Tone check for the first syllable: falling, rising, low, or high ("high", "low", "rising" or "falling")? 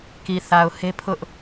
low